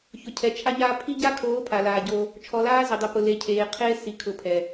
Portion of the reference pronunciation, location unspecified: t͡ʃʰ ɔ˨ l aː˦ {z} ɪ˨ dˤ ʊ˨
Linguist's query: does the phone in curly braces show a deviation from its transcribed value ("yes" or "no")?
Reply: no